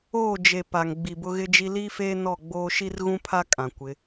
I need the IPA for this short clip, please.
oː˦˨ d͡ʒ e˨ p a˨ ŋ ɡ͡b i˨ b ʊ˦ ɣ ɪ˦ d͡ʒ i˦ l iː˦ f eː˦ n ɔ˦˨ ɡ͡b oː˦ ʃ i˦ r ɣ ũ˦ pʰ a˦ kʼ ã˨ kʷ ɪ˨˦

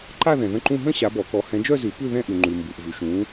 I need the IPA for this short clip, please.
ǃ a˥˧ ð ɛ̃˨ ð ə̃˥˧ ǃ ũ˥˧ ɦ ə̃˥˧ ɕ a˨˦ b ɔ˨˩˦ k ɔ˨˦ h ɛ̃˨˦ d͡ʒ œ˥˧ z ʉ˨˩˦ p ʉ˥˧ ð ɛ̃˥˧ ʔ ʉ˨ ŋ͡ǃ ʉ˨ m b u˨ ʔ v ʉ˨ ʃ ũ˨˦

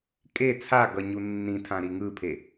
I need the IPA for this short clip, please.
kʼ e t͡sʰ a ɡ ʌ ɲ u nː ĩ tʰ ã ɾ i ŋ ɯ pʰ e

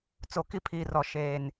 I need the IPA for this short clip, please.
t͡s o˨ k i˦ pʰ iː˨ r ɔ˨ ʃ eː˨ n

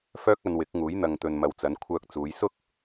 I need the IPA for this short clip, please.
f œː˥ k̚ ɐ˧ n w ɪ˨˥ k̚ ŋ uː˨˥ j n̪ ɐ˧ ŋ t̪ ɵ˧ n m ɐ˧ w t͡s ɐ˨˧ n kʷʰ œː˧ k̚ t͡s uː˨˧ j s ʊ˥ k̚

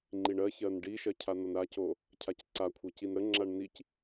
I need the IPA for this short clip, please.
ŋ͡ǃ i ɳ ɜ ç ɜ n ɖ i ʃ ɜ cʰ a n ʌ n ɾ a c o | cʰ a c ǀ a kʷʰ ʌ c i n ɾ ə ŋ͡ǁ a ɳ n i c

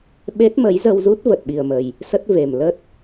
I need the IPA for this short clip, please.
ɓ e˦˥ t̚ m ə˨˦ j z ə˧ w z u˦˥ t̚ v ə˨˩ t̚ ɓ i˨˩ ə̯ m ə˨˩ j | s ə˦˥ t̚ v e˨˩ m l ə˦˥ t̚

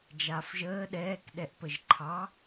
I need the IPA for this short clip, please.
d͡ʒ aː f ʒ əː ɗ ɛː k ɗ ɛ ʔ p ə ʒ ǃʰ ɑ

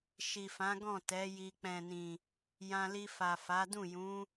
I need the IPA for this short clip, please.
ʃ i˨ f ã˨˦ ɡ ɔ̃˦˨ t ɛ˨˦ j i˧ k͡p ɛ̃˨ n ĩ˨ | j ã˧ l i˧ f a˨ f a˨˦ d ũ˦˨ j ũ˨˦

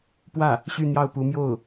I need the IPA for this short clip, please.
p w ä˥˩ | ɕ y˥˧ n̪ j ɑ˥˩ ʊ̯ p u˧˥ m j o˥˩ ʊ̯

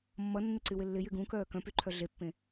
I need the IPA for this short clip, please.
mː ʌ nː ɪ ǀ y w ɪ lː ɪ j y ɡ ũ k œː k œ̃ p y ǃʰ œ ɮ e pː ẽ

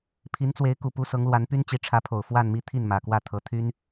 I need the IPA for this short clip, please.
pʰ i˧˥ n t͡s w e˧˥ ɪ̯ k u˨˩ p u˥ s ɤ˧˥ ŋ l w a˧˥ n p y˥ n t͡ɕ i˧˥ ʈ͡ʂʰ ä˧˥ pʰ o˨˩ ʊ̯ f w a˥˧ n m i˥˧ t̪ʰ i˥˩ n m ä˨˩ k w ä˥˩ t̪ʰ ɤ˧˥ t̪ʰ y˥ n

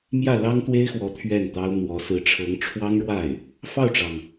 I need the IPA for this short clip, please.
m j ä˥˩ l ɑ˥ ŋ t̪ w e˥ ɪ̯ x w ɔ˧˥ t̪ʰ ɥ ɛ˥˩ n t̪ ɑ˥ ʊ̯ n̪ w ɔ˧˥ s ɹ̩˧˥ ʈ͡ʂʰ ɤ˧˥ ŋ ʈ͡ʂʰ w ɑ˥ ŋ ɻ w a˥˩ ɪ̯ | f ɑ˥˩ ʊ̯ ʈ͡ʂ ɑ˩ ŋ

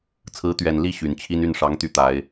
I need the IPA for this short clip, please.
t͡sʰ ɹ̩˨˦ t̪ ɥ ɛ˨˩ n l i˥˨ ɕ y˨˩ n t͡ɕʰ i˦ n y˥˨ n ʂ ɑ˨˦ ŋ t̪ y˨˦ t̪ a˨˦ ɪ̯

